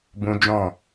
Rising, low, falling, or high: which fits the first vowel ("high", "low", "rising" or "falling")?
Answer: high